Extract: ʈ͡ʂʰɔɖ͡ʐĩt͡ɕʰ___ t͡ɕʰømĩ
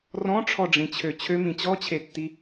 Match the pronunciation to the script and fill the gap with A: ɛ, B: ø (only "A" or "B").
B